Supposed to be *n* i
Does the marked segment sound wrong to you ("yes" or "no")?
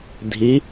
yes